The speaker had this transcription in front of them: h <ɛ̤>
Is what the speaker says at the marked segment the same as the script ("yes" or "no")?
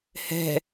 yes